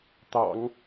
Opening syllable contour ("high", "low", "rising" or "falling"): low